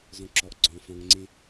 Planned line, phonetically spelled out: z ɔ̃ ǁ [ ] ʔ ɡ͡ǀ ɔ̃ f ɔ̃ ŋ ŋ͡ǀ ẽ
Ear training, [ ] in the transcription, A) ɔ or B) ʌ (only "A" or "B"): A